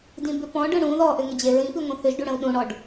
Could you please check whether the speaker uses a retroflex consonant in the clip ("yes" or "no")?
yes